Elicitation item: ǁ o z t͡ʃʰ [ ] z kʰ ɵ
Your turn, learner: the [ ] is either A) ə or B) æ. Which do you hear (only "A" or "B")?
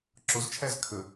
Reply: B